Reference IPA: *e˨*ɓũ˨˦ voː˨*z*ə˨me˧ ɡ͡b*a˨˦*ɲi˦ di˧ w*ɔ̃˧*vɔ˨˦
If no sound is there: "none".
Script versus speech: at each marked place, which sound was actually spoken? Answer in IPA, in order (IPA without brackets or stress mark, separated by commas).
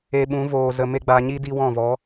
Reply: e˧, z, a˧, ɔ̃˦˨